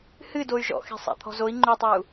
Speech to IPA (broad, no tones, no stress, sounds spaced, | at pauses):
h ɨ d o y̯ ʒ ɔ̰ x e̤ sˤ a̰ t̪ʰ ɔ̤ z o i̯ ŋ͡ǃ ʉ tˤ ʉ u̯